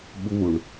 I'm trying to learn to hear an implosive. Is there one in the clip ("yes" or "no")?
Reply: yes